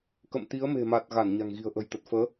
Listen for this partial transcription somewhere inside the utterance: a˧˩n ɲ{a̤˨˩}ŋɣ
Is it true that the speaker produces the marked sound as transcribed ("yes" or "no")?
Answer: yes